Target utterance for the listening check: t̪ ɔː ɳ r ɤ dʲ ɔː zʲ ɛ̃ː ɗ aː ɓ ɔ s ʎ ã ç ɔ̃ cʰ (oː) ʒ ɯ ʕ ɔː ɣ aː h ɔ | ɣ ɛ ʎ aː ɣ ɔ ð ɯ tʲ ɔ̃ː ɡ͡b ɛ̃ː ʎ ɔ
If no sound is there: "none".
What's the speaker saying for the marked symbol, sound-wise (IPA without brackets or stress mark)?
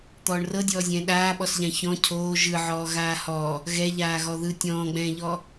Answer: oː